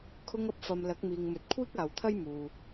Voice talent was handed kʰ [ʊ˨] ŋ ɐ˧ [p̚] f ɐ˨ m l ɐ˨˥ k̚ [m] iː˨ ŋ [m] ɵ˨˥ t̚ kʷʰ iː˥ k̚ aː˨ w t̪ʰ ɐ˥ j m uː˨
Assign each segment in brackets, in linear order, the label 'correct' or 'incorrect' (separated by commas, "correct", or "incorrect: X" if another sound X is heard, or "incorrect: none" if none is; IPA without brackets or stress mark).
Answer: incorrect: ʊ˧, correct, correct, correct